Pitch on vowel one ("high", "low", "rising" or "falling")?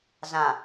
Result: low